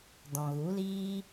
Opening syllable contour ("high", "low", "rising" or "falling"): low